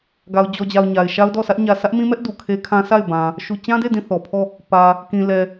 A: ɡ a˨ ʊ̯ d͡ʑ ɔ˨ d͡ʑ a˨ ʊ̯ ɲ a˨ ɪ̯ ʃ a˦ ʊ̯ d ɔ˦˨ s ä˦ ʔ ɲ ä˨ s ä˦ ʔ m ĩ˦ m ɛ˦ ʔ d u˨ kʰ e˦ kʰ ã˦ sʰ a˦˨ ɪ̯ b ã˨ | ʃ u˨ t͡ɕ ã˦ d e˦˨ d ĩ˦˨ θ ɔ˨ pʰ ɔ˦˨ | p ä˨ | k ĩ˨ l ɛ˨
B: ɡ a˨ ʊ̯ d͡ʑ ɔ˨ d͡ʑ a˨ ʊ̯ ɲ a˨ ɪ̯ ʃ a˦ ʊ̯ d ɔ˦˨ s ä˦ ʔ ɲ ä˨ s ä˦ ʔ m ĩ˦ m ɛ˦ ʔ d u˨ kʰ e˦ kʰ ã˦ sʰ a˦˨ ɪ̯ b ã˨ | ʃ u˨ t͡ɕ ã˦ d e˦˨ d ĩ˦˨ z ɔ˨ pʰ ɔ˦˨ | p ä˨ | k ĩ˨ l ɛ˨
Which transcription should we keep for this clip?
A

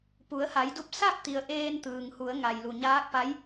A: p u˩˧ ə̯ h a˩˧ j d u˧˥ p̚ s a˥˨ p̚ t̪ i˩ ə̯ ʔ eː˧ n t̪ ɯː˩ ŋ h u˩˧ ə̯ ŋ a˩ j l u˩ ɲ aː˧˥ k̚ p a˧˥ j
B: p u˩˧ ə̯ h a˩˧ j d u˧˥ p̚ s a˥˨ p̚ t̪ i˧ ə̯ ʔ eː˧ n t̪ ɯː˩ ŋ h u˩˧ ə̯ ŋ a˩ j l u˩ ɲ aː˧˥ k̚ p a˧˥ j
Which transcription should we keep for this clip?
A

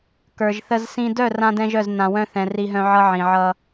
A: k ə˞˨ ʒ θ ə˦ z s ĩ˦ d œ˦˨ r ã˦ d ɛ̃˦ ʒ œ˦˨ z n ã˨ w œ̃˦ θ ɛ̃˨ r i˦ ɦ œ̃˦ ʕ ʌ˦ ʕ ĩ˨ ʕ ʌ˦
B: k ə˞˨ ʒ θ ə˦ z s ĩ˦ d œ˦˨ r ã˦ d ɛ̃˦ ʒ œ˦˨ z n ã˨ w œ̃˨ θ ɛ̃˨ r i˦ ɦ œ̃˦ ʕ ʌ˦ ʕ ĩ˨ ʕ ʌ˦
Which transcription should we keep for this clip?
A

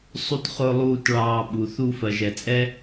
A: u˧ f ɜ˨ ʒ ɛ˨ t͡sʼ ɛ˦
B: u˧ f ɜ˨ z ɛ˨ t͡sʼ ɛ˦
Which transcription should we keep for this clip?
A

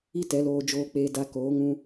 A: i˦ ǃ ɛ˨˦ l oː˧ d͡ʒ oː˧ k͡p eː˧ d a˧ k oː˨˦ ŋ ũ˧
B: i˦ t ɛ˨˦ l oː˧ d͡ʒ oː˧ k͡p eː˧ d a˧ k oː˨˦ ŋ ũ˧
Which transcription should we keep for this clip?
B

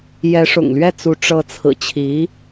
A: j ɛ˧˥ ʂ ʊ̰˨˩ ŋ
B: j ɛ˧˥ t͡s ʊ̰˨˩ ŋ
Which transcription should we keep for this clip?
A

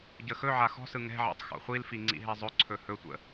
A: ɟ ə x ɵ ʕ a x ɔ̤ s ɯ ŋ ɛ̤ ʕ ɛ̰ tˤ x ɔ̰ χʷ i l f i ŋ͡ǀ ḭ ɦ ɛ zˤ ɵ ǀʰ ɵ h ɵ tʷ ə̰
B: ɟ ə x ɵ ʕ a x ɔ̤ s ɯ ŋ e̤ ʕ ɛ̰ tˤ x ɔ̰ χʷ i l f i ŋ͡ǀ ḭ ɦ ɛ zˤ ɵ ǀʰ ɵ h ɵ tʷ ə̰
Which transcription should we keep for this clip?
A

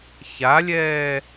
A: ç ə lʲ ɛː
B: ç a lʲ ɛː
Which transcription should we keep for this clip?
B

